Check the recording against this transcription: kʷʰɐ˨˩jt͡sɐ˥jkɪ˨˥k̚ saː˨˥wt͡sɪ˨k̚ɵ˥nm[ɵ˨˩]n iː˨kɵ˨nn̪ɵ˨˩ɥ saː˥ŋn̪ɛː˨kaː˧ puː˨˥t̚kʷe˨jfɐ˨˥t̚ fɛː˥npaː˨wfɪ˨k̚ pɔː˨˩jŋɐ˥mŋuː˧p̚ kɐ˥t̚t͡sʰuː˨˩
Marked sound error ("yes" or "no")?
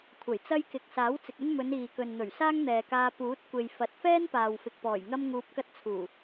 yes